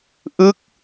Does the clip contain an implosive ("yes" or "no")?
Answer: no